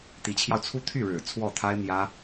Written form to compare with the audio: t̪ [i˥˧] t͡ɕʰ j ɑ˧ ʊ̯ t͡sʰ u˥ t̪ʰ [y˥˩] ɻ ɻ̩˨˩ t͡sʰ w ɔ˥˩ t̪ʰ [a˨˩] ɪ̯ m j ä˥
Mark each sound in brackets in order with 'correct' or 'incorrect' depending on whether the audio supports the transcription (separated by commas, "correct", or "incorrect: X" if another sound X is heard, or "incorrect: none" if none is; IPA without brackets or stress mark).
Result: incorrect: i˧˥, correct, incorrect: a˥